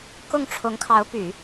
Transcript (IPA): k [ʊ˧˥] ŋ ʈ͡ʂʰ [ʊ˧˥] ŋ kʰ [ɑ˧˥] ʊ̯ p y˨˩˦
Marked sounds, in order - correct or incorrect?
incorrect, correct, correct

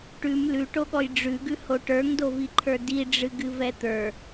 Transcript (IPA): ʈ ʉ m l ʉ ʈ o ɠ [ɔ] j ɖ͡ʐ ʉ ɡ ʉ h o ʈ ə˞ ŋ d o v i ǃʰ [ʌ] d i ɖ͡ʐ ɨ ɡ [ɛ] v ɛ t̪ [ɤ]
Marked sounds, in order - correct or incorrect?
correct, incorrect, incorrect, incorrect

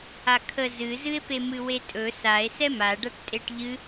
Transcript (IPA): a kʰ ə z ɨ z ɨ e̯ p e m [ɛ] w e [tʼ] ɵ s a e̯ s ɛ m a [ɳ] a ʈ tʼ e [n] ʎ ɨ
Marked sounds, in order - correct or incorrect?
incorrect, correct, incorrect, incorrect

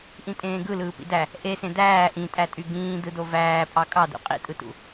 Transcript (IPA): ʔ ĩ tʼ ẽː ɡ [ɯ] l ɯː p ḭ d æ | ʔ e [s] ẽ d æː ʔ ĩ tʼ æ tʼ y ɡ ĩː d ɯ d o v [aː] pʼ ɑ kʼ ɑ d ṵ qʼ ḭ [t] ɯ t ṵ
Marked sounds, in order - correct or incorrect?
correct, correct, incorrect, incorrect

